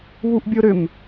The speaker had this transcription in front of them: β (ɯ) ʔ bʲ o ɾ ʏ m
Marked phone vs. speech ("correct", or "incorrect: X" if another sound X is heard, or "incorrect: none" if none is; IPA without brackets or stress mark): incorrect: u